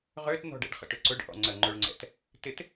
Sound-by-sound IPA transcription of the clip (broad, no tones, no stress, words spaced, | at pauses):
ʁøtn̪ɔ̤ɖɛ̰ɖ χə̰ʈʏǀʊɖ ʔɔ̰ŋ͡ǀə ŋ͡ǃʊɭŋ͡ǀɛ̰t | tɪt